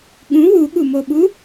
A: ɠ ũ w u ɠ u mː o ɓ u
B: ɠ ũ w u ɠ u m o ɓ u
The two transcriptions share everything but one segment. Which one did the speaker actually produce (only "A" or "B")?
B